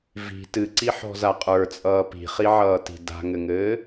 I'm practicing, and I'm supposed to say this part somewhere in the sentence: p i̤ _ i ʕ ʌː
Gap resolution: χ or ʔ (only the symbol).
χ